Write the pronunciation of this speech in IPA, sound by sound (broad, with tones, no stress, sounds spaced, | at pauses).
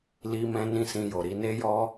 l i˦ m ɛ̃˦ n ĩ˦˨ s ĩ˧ j o˨ ɾ i˧ n e˦ j ɔ˦